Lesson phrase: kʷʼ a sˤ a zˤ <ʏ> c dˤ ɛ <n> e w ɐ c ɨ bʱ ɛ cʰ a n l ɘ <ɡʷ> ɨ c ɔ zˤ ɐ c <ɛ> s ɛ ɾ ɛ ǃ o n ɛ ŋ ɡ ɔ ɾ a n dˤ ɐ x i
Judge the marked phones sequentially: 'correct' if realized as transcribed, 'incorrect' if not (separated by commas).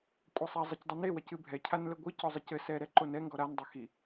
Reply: incorrect, correct, correct, incorrect